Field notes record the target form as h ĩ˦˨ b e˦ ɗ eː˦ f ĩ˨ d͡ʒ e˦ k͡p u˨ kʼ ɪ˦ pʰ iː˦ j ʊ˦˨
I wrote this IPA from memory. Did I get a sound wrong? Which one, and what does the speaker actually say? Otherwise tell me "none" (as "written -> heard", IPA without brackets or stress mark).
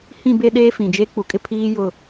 none